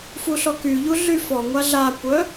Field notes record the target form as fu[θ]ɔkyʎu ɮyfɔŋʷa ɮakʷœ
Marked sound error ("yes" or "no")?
yes